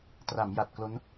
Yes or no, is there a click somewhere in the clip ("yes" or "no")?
no